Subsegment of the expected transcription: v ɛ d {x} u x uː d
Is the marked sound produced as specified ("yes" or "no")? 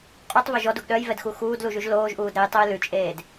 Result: yes